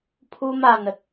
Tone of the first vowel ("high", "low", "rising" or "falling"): high